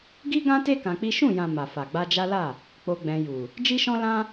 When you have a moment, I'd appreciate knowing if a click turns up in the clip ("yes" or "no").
no